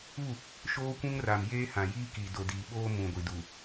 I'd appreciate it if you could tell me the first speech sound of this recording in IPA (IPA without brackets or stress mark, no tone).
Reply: u